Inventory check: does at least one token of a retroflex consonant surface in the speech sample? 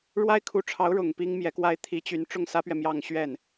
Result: yes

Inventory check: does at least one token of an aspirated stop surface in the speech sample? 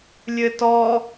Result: no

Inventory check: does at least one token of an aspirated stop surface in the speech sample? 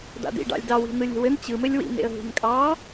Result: no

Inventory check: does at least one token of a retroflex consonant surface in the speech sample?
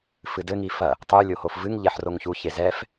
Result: no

